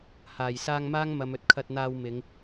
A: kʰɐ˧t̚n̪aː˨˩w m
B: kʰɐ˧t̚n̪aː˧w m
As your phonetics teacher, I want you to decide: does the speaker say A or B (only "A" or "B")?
B